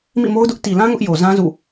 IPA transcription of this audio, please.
m ḭ˦˨ m o˦ ʊ̯ d ʊ˦ ʔ t i˨ l ã˦ ŋ ʊ˦ ʔ j o˨ z ã˦ z ṵ˦˨

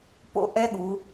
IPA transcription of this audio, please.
p o̰˥˧ ʔ ɛ˥ ɠ u˨˦

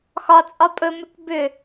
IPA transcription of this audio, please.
x ɒ t͡sʼ ɒ pʼ ɵ m ʏ k b ʏ

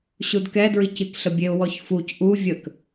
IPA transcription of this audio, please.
ɕ u d k ɛ d ɹ i c i k ɬ ə bʲ e ʊ̯ w ɔ ç f u c ʔ u vʲ ə k

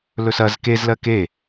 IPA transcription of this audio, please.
l ɵ s ɐ z k e z l ɜ k e

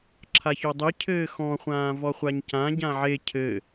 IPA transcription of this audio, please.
ǁʰ a ç o dˤ ɨ cʰ ɘː x ɔ̃ χʷ ãː v ɔ χʷ a ɲ c ã ɟ ã ʕ e cʰ ɘ

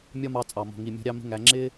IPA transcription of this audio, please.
mʲ ɒ˦ m ɑ˧ t͡sʼ ɑ˨ m ɔ̤˨ ŋ i˨ mʲ ɔ̤˧ ɾʲ ɑ˦ m ə̤˦ ŋ æ˧ ŋ͡ǁ ɪ˦

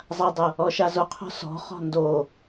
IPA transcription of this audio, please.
zˤ a dˤ ɤ | ɔ ʃ a z o qʰ ɔ̤ s ɔ̤ χ ɔ̤ n d o

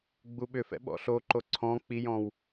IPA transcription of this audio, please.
ɡ͡b u ɓ ʏ f ɛ̰ ɓ ɔ̰ ɬ o ǃ o ǀʰ ɔ̃ k͡p i j ɔ̃ w

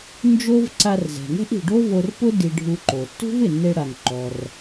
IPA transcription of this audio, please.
n d͡ʒ o˥ v ǀ a˧ r z ɛ̤˩ ŋ ɛ̤˥ ʔ i̤˩ ɖ o˥ v o˧ r p ʊ˥ d i˧ ɖʱ u˧ ǃ o˩ tː ṳ˥ v ɪ˩ nː e˧ ɽ a˩ ŋ ǃ ɔ˩ r

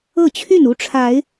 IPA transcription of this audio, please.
ɤ˥˨ t͡ɕʰ y˥˨ n u˥˨ ʈ͡ʂʰ a˨˦ ɪ̯

